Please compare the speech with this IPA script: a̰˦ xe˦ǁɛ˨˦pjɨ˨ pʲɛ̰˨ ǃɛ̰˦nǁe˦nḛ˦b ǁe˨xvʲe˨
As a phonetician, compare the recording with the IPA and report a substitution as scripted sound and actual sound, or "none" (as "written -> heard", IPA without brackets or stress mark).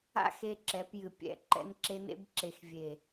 none